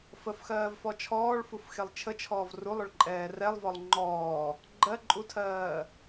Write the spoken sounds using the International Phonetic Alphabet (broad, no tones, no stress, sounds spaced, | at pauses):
f ə f x ɜː v f ɔ t͡ʃʰ ɔː ɭ f u f x e lˠ t͡ʃʰ ə t͡ʃʰ ɔː v r u lˠ ʊ ɭ ǃʼ ɛː r ɛ lˠ v ɔ lˠ ŋ͡ǃ ɔː | ɡ͡ǃ ɜ ǃʼ u tʰ ɜː